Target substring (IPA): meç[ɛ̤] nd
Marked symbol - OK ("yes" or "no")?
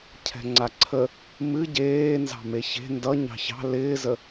no